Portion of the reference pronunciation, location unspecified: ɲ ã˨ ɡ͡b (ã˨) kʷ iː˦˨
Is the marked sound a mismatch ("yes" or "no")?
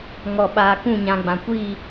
no